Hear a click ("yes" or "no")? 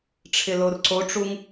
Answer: yes